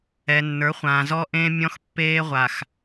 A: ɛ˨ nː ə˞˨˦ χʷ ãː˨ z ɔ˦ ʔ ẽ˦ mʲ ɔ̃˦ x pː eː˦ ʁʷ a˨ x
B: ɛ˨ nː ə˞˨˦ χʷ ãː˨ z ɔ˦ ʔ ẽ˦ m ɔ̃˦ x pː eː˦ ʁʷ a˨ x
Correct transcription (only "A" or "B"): A